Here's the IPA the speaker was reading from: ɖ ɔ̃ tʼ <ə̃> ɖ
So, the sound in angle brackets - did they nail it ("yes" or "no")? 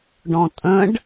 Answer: yes